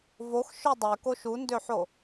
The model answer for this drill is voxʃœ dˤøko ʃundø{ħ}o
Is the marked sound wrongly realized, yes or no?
no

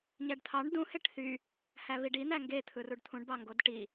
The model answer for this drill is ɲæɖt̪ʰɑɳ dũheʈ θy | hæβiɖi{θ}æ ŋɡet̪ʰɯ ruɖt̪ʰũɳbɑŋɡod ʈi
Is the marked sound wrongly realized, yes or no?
yes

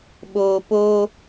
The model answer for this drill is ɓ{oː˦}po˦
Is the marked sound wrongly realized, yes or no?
yes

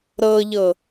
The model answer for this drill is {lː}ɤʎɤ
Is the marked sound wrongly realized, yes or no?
yes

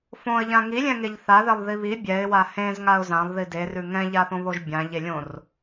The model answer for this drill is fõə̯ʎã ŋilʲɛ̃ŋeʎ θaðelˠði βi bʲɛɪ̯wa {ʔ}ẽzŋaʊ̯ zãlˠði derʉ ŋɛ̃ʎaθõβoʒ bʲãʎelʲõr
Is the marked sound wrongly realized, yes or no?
yes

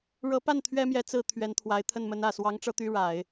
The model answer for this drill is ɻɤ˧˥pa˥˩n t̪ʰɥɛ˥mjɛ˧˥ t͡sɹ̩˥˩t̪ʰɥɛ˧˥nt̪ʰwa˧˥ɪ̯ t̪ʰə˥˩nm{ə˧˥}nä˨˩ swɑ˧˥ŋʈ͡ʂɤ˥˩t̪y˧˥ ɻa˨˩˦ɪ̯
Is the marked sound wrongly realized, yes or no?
no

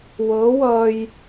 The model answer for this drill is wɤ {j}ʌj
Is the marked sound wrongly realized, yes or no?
yes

